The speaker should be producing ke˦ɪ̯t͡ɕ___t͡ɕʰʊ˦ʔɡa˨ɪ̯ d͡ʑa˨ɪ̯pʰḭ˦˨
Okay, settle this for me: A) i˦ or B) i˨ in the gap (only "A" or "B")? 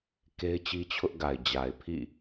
A